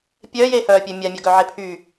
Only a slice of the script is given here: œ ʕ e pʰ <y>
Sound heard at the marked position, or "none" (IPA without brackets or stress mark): y